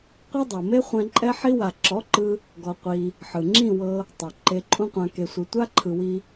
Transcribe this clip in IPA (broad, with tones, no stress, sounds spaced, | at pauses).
qʷ ɛ˦ dˤ o˨ m e˦ χʷ ɛ̃˧ ǃʼ ɛ˧ ħ i˧ w a˨ ǁ ɔ˨˦ ǃ ɯ˦ | ɡ ɔ˧ qʷ i˧ | ħ ɯ˨ ŋ͡ǁ ĩ˦˨ w ɤ˧ | tˤ o˨ ǃ e˧ ǃʼ ũ˦ qʷ ã˧ k e˧ sʷ ɯ˧ tʷ a˦ ǃʰ ɯ˨ w i˧